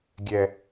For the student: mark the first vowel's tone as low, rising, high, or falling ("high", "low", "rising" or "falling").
low